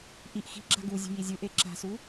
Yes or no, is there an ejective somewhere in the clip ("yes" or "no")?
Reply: no